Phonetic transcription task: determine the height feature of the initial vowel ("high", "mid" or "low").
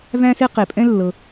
low